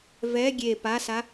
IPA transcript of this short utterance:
vɛ ɡʲe pasa

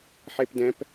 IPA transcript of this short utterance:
ħepdɛ̃p

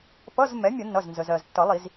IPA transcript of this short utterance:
pʌ˧˥˧z mɛ˩˥ mʲə˨˩˦nːʌ˩˧˩znzə˩zɜ˩z tːʌ˨˩˦lˠi˨˩˦z

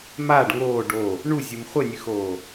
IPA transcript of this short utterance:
maːɖ ŋoː ɖo | ɳuzʲɨm χʷɘnʲɨxoː

